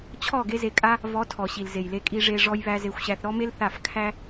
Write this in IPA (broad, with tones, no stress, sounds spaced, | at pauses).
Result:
t͡ɕʰ ɔ˦˨ ɡ e˦ z e˧ kʼ a˦ | v ɔ˨˦ tʰ ɔ˨ ɕ i˨ l z e˨ j l e˧ kʼ i˧ ʐ e˧ ʐ ɔ˦ j β æ˦ z e˧ xʷ ɕ æ˧ θ ɾ ɔ˦ m e˦ l θ a˦˨ f kʰ æ˦